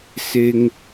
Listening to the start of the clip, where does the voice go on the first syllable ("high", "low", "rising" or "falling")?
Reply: high